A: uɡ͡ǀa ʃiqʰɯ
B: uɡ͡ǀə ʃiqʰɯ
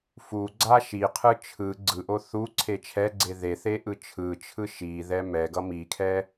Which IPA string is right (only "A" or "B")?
A